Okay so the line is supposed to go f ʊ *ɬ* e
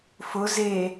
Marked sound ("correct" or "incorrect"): incorrect